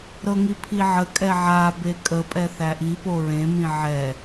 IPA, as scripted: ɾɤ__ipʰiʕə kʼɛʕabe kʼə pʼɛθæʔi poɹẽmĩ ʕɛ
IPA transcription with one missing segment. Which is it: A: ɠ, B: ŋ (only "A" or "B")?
B